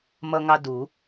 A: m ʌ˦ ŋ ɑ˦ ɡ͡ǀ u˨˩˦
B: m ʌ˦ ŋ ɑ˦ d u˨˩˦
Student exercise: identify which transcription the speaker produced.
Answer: B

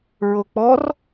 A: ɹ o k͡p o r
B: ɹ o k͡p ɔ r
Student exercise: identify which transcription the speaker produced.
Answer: B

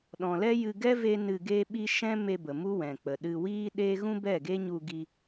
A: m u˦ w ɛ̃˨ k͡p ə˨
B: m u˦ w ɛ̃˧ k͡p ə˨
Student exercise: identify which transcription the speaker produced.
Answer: A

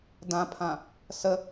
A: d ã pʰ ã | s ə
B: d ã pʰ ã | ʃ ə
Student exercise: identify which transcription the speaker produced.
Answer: A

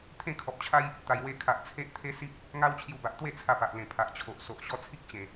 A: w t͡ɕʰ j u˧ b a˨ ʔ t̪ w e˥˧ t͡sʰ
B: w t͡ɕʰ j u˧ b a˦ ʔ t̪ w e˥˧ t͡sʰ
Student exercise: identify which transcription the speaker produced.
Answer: A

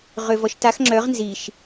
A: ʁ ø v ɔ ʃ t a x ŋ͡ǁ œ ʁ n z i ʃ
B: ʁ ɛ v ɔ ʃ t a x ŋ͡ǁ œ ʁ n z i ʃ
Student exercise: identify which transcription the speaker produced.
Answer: A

